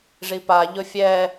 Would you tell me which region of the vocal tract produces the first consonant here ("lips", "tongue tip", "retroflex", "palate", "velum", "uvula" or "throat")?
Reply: retroflex